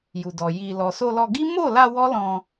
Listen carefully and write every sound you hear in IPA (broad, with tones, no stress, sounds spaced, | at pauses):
j u˨ d ɔ˨ j i˨ l ɔ˨ s o˧ l ɔ˧ ɡ i˦ m o˦˨ l a˧ w ɔ˦ l ɔ̃˧